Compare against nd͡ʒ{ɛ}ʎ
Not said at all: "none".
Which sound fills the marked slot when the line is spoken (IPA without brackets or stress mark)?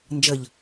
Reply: ə